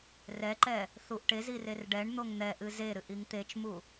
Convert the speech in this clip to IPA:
r ɛ ǃ ɛ | θ u ʔ ʈ e z i r e r ɖ ɛ ɳ n̪ o ŋ n̪ ɛ ʔ ɨ z e ɾ ɨ ʔ i ŋ t̪ e t͡ʃ m u

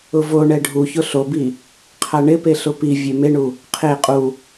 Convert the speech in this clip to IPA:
ʊ v o ɳ ɛ ɖʱ u ç ʊ ɬ o b i | qʰ a ɳ ɪ p e ɬ ʊ p i vʲ e m e ɳ u | qʰ e qʼ u

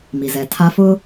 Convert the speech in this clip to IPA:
m i˨ z ɛ˨ tʰ a˦ f ʊ˦

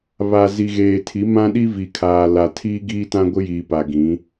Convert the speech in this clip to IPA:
β a˨ z i˨ ɣ eː˨ tʰ i˨˦ m ã˦ ɗ i˦ v i˨ kʰ aː˨ l a˨ tʰ iː˦ ɡ iː˦ t ã˦ ɡʷ ɪ˦ j iː˨ p a˨ ɡ ĩ˨˦

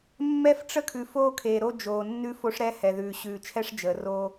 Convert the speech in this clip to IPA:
mː ɛ˦ f ʈ͡ʂ ə˦ kʰ ʉ˨ f oː˦ kʰ eː˨ ɾ o˦ d͡ʒ oː˨ nː ʉ˦ f o˦ ʂ ɾ ɛ˦ h ɛ˨ ð ʉː˨ ɕ ʉː˨ t͡ʃʰ ɛ˦ ʂ d͡ʒ əː˨ r oː˦

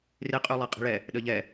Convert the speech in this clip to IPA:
r e qʼ y lˠ ɛ qʼ i̤ ɭ ɛ | ɗ ə ʎ ɛ

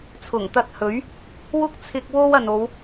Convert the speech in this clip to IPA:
t͡sʰ ʊ˨˩ ŋ t̪ ɐ˧ t̚ h ɵ˨˥ ɥ | w ʊ˥ k̚ t͡sʰ ɪ˧ k̚ w o˥ w ɐ˨ n o˨˧ w

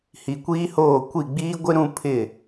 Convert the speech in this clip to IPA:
h i˨ kʷ iː˦ h oː˦˨ kʷ i˦˨ ɡ͡b iː˦ ɡʷ ɪ˦ ɾ ũ˦ pʰ ɪ˦˨

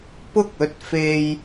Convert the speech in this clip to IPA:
p ʊ˥ k̚ ɵ˨˥ t̚ f e˧ j

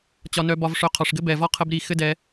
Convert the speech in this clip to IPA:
t͡ɕ ɒ˧ n œ˧ b ɒ˧ v ʂ œ˧ qʰ ɒ˨ ʂ ɡ ɘ˦ b ɛ˨ v ɒ˦ qʰ ə˦ b ɾ i˦˨ x ɘ˦ d ɛ˧

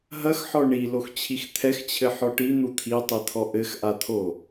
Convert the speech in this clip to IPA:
ɦ ɐ x ħ ɔ ɳ i l o x t͡ɕʰ i x t̪ʰ ɛ x t͡ɕʰ ɘ ħ ɔ ʈ i n̪ u t̪ʰ i tˤ i t̪ʰ ɔ ʔ ɘ x ʔ a t̪ʰ o

